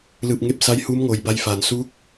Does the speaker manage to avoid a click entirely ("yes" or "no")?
yes